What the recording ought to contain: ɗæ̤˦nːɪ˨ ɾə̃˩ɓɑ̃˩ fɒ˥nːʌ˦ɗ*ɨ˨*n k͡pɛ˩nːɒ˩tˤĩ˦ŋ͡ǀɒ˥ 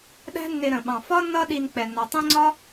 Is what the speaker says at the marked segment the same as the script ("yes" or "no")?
no